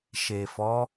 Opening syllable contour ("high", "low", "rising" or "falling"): low